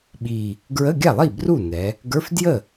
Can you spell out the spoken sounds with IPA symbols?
ɓ i˨˩ | ɡ ɹ ə˧˥˧ ɡʲ a˥˩ lˠ i˥˩ b r u˥˩ n ɛ˩˧ | ɡ ə˞˧˥˧ f d j ə˥˩

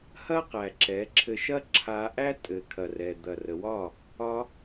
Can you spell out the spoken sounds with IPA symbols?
h ɐ˦ q æ˨ ǁ ɛ˨˦ ǁʰ ɘ˧ ʃ ɐ˦ ǁʰ a˧ ʔ æ˦ tʼ ɘ˨ kʰ ɐ˨ r ɛ˨ d̪ ɐ˨ r ə˨ w ɒ˦˨ | ɒ˦

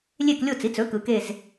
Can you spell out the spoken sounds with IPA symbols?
lʲ e˦˨ k lʲ o˦˨ t͡s i˩˥ t͡s ɵ˩˥ k ɯ˩˧˩ k e˦˨ z

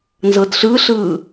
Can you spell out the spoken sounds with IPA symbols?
n z ɤ d ɬ ɯ ɬ ɯː

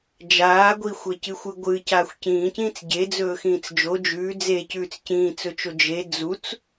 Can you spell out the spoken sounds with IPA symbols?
d͡ʒ aː ɡʷ i xʷ e c ɨ xʷ ɨ ɡʷ ɨ c aː xʷ c ĩː c ĩː t͡s ɟ e d͡z ɵː x ĩː t͡s d͡ʒ o d͡ʒ ʉː d͡z e c ʉː t͡s c ĩː t͡s ɵ t͡ʃ o d͡ʒ e d͡z u t͡s

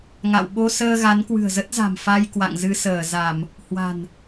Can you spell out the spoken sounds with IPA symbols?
ŋ a̰˧˨ w ɓ o˧ s əː˧ ɣ a˨˦ n k w ɨ̤˨˩ ə̯ z ə˦˥ t̚ z a̤˨˩ m f a˧ j k w a̰˧˨ ŋ z ɨ˧ s əː˧˩ z a˧˩˨ m | h w a̤˨˩ n

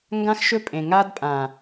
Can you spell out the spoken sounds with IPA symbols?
ŋ ɡ ã˦ x ʃ ɵ˦ pʼ ẽ˨ ŋ a˦ d pʼ ã˨

